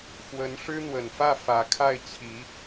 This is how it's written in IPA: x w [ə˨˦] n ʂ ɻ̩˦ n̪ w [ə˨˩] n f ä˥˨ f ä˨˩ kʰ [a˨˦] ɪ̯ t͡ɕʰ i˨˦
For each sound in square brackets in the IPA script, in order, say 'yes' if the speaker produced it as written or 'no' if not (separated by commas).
yes, yes, no